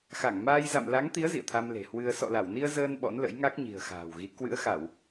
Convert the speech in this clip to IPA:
xa˧˩ŋ maː˧j za̰˧˨m la˨˦ŋt̪i˨˦ə̯ zḭ˧˨ə̯t̪ʰa˧mle̤˨˩ hwɨ˧ə̯ sɔ̰˧˨la˧˩wni˧ə̯ zəː˧n ɓɔ̰˧˥nlə̰˧˥jŋa˦˥k̚ ɲi̤˨˩ə̯xa̤ː˨˩wɣi˨˦ kwɨ̰˧˥ə̯xa˧˩˨w

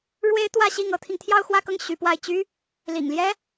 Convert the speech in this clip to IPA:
ɻwe˥ɪ̯t̪wä˥˧ɕi˥˩ŋ ɤ˧˥t̪ʰi˧ŋ t̪ʰjɑ˥˧ʊ̯xwä˥˧kɤ˥˩ŋ ɕy˧˥pwa˥˩ɪ̯ t͡ɕy˥ | lḭ˨˩ŋljɛ˥

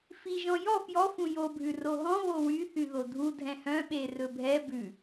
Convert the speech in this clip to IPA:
fiʒɔ̃ jɔ fjɔ fũjobʱʉ roɦɔ̃ βowy θyðodʱu dʱɛ̃hœ̃ɓe rɵbʱɛ bʉ

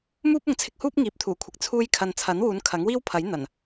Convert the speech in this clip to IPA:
muː˥p̚ʊ˨ŋt͡sʰɪ˧k̚huː˥p̚ ŋiː˨p̚t̪ʰuː˨˩kʷʰɪ˨k̚ t͡sʰuː˧jkʰɐ˨n t͡sʰɐ˨˥nwuː˨˧n kʰɐ˨˥ŋwiː˥wpʰɐ˨˥j n̪ɐ˨˩n

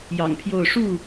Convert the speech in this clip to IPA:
jɑ̰˨˩ŋpʰjo˥˨ʊ̯ ʂu˥˨

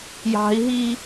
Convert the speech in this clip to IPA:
jɑ̤i̯ɦi

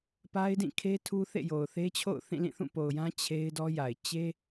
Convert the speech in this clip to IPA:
pa˦ɪ̯dĩ˦˨kʰe˦ tʰu˦θḛ˦˨jo˨ʊ̯ θe˦t͡ɕʰo̰˦˨ʊ̯θĩ˦˨ lĩ˦˨θũ˦˨po˨ʊ̯jã˦ t͡ɕʰe˦ɪ̯dɔ˦ja˨ɪ̯ t͡ɕe˦

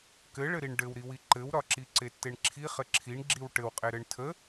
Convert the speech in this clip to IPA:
kɘɭɘɾiɳ ɖɘwɾiwi ǃɘwɾɒǁi ǀetːeɳǁʰi χɘǁʰiɳ ɡ͡ǁiwʈɘwqʼe ɾɘɳtʰə

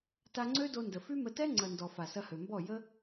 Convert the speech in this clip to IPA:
ta˧ŋ͡ǀø˦do˧ ndə˨fy˦mə˧ tɛ˦ ŋ͡ǀɐ˨ndɔ˨ fa˨sɐ˧hø˨mbɔ˦˨ jə˦

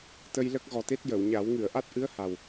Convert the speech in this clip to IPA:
t̪ə˧jlə˦˥k̚ɣɔ˨˩t̪e˦˥t̚ jə˨˩˨wɲa˨˩˦w ŋɨ˨˩˨ə̯ʔa˦˥t̚ʔɨ˧˥ə̯ ha˨˩w

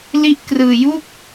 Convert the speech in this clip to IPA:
li˦˥ʔkrɯː˧ju˥˩k̚

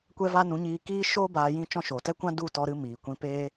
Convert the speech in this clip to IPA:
kʷɛ˧va˧ nũ˨˦ɲiː˧ kiː˦ ʃoː˦ baː˧jĩ˦t͡ʃɔ̃˦ ʃo˨tɛ˦kʷã˦ du˦˨tɔ˧ɾɨ˧ miː˨kʷĩ˧peː˦

